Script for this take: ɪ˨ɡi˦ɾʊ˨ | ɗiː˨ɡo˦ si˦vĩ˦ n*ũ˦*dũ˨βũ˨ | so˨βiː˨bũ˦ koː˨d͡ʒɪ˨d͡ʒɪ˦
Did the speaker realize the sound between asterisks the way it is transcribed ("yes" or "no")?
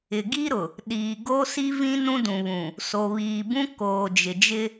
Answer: yes